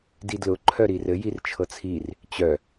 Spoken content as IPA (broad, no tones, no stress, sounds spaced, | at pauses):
d i d l ʊ ǃʰ œ ɾ i r ɘ j i r t͡ʃʰ ɤ t͡sʰ i r | t͡ɕ œ